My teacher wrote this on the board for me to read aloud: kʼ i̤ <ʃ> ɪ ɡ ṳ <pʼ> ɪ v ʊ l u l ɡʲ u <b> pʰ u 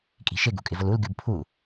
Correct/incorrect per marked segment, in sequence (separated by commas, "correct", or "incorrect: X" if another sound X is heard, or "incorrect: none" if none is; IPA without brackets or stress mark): correct, incorrect: kʼ, correct